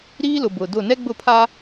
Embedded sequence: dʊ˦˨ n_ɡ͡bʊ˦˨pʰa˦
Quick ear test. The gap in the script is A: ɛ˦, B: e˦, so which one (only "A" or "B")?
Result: A